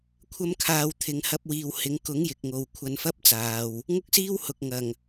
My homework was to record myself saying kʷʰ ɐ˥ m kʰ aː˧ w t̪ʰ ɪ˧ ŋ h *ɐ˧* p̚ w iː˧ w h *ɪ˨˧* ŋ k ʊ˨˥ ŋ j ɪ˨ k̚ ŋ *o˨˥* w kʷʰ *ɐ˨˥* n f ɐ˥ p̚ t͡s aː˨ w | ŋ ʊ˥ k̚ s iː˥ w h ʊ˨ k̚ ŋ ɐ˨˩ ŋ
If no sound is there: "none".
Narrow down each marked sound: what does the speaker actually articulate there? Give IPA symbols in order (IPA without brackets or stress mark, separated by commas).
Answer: ɐ˥, ɪ˨˧, o˨, ɐ˧